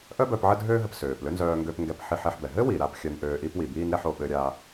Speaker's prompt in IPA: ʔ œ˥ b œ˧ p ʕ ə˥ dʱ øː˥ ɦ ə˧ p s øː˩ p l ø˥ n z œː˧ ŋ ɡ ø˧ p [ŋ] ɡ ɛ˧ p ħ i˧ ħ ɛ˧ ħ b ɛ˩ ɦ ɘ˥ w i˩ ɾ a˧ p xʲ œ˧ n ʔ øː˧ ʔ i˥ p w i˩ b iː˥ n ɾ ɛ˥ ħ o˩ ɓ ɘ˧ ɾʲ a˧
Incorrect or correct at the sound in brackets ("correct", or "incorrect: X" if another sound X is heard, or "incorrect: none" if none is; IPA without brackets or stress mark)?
correct